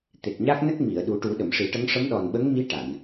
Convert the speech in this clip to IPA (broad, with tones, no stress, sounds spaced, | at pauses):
t̪ e˨˩ k̚ ɲ a˦˥ k̚ n ə˦˥ k̚ m i˨˩˨ ə̯ ɗ u˨˩˦ ʈ u˨˩˦ ɗ ə˨˩˨ m ʂ i˨˩˦ ʈ ə˧˥ ŋ ʂ ə˧˥ m ɗ ɔ˨˩ n ɓ ə˧˥ ŋ m i˧˥ ʈ a˨˩˨ n